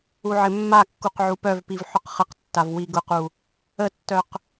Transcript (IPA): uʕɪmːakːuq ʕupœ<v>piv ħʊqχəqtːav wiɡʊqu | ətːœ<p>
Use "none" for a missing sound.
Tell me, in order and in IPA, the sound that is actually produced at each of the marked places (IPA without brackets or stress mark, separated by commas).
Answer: v, q